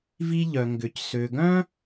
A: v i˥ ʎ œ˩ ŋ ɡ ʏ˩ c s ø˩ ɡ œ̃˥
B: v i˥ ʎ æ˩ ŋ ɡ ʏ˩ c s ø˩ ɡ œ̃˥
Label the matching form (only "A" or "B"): A